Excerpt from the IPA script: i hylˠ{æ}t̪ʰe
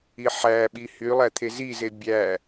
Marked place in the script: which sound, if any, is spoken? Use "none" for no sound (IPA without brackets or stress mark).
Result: æ